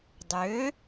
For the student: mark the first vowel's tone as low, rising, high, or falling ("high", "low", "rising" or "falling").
rising